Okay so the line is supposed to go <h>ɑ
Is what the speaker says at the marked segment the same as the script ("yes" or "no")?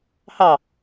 yes